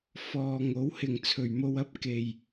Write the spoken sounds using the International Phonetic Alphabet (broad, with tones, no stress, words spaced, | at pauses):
fɔː˨ŋo˨˥w hɪ˨ŋt͡sʰɵ˨ɥmo˧wɐ˥p̚ ke˧j